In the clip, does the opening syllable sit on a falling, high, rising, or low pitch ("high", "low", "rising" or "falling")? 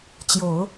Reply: low